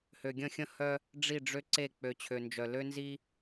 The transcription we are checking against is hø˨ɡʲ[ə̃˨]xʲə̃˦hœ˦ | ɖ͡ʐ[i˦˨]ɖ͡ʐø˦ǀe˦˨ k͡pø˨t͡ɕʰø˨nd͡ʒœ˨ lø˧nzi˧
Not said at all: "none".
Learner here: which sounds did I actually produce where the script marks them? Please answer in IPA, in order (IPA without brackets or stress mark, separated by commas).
ə̃˦˨, i˦˨